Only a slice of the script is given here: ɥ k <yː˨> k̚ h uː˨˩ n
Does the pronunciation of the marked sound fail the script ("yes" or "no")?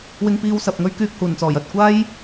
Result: yes